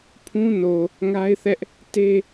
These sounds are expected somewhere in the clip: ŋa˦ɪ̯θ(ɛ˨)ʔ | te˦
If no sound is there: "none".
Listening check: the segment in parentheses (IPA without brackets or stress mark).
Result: ɛ˦